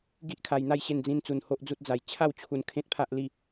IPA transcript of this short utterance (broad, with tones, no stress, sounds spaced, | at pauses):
ɡ i˦ ʔ kʰ a˧ j n̪ a˥˧ j ɕ e˥˧ n d͡z ĩ˦ n t͡s u˧ n h o˦ ʔ d͡z u˦ t̚ d͡z a˧ j t͡ɕʰ a˥˧ w t͡ɕʰ u˧ n kʰ ẽ˦ t̚ pʰ a˦ ʔ l i˥˧